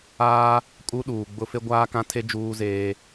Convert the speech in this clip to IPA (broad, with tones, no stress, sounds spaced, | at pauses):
aː˦ | kʼ u˦ ɗ uː˨ ɡ͡b ʊ˦ f e˦ ɡʷ aː˦ k ã˦ tʰ e˦ d͡ʒ uː˦ z eː˦